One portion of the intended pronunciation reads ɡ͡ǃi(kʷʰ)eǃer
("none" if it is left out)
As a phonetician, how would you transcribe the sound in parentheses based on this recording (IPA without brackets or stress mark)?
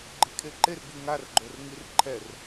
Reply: kʰ